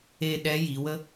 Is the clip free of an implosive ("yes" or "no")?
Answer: no